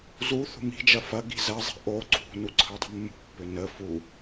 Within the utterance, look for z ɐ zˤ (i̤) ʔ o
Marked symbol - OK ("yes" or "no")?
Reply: yes